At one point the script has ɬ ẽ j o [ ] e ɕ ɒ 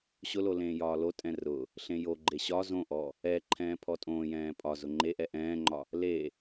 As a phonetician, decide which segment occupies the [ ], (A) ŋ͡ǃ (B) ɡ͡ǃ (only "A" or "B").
B